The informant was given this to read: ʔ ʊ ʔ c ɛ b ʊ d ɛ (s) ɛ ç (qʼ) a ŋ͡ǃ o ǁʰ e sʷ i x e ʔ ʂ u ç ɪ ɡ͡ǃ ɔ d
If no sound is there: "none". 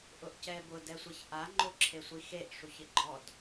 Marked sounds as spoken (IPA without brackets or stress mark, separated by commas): sʷ, ʔ